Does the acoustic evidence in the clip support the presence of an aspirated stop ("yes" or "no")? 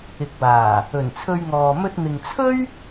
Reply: yes